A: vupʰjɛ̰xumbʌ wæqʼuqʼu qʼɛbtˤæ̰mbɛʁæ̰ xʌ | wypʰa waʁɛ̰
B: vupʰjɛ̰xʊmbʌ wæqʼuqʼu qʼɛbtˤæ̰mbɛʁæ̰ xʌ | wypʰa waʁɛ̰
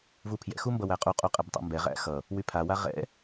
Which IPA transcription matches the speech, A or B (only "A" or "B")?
A